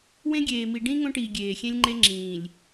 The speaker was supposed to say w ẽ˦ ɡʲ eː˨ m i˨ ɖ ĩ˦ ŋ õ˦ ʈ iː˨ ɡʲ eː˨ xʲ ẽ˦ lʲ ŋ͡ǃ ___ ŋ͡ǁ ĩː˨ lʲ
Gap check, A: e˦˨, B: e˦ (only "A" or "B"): B